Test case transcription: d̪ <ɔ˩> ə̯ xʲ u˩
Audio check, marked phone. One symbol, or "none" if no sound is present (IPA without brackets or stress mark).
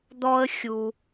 ɔ˧